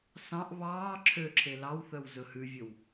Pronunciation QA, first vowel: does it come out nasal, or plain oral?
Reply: nasal